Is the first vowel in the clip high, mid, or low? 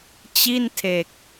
high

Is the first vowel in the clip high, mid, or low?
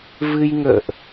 high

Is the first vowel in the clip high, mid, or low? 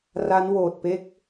low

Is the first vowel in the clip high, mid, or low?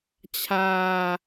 low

